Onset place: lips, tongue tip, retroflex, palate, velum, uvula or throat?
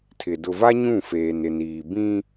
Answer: tongue tip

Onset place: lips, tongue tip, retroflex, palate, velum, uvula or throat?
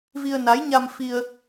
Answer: lips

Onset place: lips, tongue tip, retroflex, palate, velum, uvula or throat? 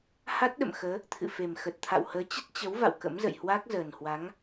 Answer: throat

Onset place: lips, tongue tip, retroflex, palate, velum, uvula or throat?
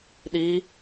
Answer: tongue tip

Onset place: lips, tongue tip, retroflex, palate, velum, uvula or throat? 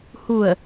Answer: throat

